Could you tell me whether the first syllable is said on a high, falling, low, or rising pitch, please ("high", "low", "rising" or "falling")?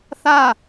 falling